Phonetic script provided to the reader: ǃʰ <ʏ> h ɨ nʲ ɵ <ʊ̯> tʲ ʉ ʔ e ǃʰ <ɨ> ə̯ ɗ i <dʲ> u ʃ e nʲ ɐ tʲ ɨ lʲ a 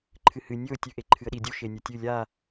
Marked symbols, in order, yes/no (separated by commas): no, yes, yes, yes